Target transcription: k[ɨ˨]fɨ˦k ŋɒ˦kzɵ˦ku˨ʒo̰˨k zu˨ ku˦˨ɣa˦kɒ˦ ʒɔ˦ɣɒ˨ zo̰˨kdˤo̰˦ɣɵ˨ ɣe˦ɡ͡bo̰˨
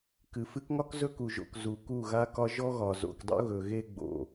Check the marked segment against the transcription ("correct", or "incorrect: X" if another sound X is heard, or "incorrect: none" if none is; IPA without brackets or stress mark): correct